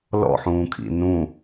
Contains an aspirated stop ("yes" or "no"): yes